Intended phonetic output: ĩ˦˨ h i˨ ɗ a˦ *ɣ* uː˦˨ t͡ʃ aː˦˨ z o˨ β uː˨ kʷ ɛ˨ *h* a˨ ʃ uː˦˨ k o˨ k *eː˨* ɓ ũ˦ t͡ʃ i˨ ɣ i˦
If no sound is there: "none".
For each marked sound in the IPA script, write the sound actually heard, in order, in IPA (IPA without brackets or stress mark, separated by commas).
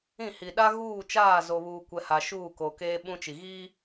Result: ɣ, h, eː˦